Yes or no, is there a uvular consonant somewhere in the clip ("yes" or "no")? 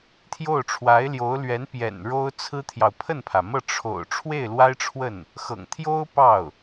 no